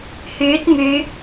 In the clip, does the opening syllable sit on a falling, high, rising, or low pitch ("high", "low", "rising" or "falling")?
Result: rising